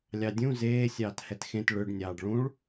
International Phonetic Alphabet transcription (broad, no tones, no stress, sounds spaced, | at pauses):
lʲ ɑ dʲ ũ z eː sʲ ɑː t h ɛ t x ẽ t ɭ ʏ ɖ nʲ ɑː ɖ ɭ ũ ɭ